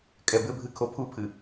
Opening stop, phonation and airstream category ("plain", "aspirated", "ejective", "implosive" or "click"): ejective